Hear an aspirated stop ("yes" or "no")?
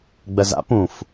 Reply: no